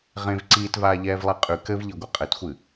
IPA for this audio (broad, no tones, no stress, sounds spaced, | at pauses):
ʁ ẽ v ǀ iː t v aː ʎ ɛː v lˠ e qʼ ʉ k ɘ v ʎ i ɡʷ ɨ qʼ ɘ t xʷ ɨ